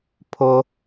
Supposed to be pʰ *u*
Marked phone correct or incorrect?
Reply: incorrect